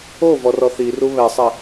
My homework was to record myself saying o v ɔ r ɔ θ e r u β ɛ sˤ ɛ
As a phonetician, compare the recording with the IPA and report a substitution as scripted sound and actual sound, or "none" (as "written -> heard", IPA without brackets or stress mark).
e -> i